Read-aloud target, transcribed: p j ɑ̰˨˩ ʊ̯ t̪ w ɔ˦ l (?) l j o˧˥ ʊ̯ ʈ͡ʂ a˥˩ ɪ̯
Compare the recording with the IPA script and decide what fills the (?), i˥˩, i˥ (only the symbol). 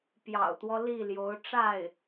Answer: i˥˩